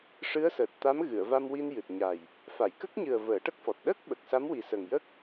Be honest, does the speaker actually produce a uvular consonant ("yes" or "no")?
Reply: no